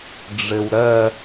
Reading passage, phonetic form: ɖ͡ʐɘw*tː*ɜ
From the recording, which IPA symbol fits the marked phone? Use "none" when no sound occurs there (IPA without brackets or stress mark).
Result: ɾ